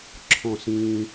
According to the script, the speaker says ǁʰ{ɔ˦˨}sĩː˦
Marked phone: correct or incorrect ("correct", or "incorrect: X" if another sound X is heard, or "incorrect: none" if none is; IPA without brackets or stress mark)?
incorrect: ɔ̃˦˨